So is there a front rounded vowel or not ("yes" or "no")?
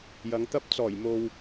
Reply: no